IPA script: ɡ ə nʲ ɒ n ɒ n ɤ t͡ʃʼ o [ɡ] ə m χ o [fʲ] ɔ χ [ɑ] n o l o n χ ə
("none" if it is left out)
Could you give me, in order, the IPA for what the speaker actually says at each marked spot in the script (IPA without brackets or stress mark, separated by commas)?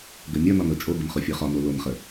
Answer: ɡ, fʲ, ɒ